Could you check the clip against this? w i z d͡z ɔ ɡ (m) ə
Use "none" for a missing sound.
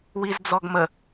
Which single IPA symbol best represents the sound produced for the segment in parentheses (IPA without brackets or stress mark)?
m